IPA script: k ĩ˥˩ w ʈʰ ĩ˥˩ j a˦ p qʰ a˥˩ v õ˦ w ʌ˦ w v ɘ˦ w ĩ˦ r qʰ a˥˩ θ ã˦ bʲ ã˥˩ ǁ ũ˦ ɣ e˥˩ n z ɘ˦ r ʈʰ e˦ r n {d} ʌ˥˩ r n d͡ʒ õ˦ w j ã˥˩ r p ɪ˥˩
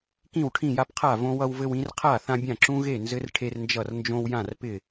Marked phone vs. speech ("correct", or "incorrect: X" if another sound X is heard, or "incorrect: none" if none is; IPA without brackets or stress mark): incorrect: d͡ʒ